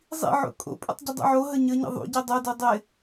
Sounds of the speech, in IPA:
zˤḭʕo̰ kʼo̰pʼṵtˤ ɟɪdˤṵʕoɦə ɲəɲə̰ ðˤṵɟi dˤodu dˤɪ

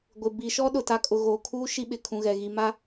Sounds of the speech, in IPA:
ɡʷɪ˨ bi˨ʃɔ˦ ɗʊ˨ta˨kʼʊ˨ ɣoː˨kʰuː˦ ʃi˦ɓɪ˨kʰũ˨ɣɛ˨ ɣi˨ma˦

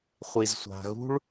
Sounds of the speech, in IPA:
χʷi˩zsʷa̤˩ɣṳ˥ɭ

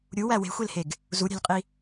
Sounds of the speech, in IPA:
ɾʲuwæ we̤xʷelheɡ | zuɾʲæ̤lʲqʼi

